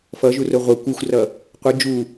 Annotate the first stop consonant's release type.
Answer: plain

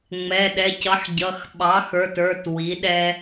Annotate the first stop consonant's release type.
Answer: implosive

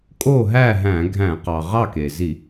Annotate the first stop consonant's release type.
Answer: ejective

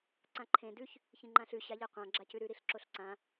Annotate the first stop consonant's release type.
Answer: click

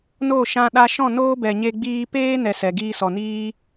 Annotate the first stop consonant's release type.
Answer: implosive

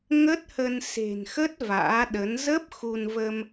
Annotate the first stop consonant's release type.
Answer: plain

